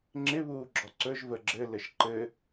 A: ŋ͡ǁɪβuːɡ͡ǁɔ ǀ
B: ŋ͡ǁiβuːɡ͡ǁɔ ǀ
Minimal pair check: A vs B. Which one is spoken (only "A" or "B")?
A